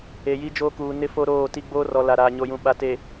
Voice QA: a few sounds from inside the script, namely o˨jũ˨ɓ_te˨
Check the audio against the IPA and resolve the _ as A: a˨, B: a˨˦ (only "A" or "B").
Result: B